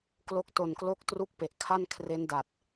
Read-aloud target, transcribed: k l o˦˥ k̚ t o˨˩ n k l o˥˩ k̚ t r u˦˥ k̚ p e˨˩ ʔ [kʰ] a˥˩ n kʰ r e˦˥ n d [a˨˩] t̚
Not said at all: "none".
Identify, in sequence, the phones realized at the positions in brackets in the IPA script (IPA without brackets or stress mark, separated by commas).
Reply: kʰ, a˨˩